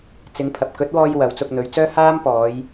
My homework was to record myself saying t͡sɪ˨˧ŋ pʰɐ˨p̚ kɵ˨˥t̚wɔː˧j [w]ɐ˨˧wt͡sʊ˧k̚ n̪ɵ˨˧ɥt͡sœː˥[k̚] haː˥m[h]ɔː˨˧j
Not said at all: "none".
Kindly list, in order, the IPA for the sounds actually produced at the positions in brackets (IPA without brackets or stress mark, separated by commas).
w, none, p